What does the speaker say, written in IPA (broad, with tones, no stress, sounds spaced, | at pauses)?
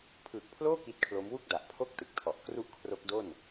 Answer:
pʰ ɯː˨˩ k̚ pʰ l oː˥˩ k i˦˥ t̚ kʰ l o˦˥ m w u˥˩ k̚ d a˨˩ ʔ pʰ o˥˩ k̚ t ɯ˨˩ k̚ tʰ ɔ˨˩ ʔ k r u˥˩ ʔ kʰ r o˦˥ k̚ d o˥˩ n